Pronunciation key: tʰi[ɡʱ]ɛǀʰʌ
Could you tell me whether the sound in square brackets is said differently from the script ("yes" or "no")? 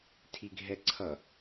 no